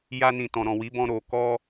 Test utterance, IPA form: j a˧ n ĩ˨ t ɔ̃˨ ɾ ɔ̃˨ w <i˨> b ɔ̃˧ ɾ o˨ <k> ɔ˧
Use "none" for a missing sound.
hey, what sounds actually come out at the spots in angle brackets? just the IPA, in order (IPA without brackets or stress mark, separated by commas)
i˨˦, k